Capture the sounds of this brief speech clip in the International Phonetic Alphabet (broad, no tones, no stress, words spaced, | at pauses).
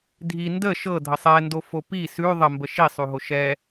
dʱi ndə ʃɤdʱə sˤɛndofo pi sʉ ðˤəmbə ʃisˤʉɦo ʃɛ